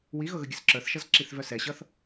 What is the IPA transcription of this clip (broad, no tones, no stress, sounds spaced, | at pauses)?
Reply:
w i ɣ ɤ ɣ ə ɡʲ ə s ǁ ə˞ θ ʃ ʌ z ǁ i θ v œ s ɛ ɕ ʌ θ